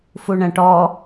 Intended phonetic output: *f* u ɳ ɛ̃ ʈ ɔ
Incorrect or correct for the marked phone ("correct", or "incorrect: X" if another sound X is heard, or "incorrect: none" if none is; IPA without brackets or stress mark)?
correct